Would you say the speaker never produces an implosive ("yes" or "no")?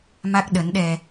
no